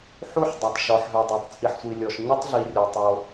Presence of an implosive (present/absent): absent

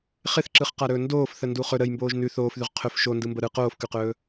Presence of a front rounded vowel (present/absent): absent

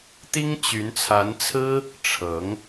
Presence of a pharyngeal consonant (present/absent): absent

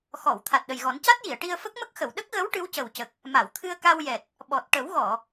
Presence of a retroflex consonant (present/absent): present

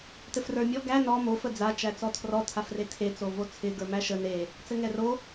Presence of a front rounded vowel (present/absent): absent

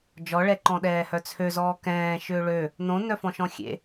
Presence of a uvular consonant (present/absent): absent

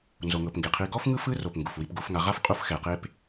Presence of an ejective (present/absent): present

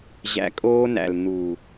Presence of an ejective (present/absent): present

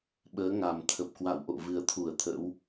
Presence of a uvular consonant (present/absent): absent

